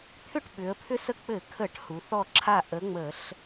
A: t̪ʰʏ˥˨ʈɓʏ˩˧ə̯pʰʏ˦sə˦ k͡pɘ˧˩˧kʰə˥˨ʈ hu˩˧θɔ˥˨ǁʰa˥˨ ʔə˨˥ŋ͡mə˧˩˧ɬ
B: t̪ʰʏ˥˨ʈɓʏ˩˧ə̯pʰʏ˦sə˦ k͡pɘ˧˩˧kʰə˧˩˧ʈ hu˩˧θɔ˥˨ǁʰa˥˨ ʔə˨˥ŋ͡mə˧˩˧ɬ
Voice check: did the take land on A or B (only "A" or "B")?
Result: B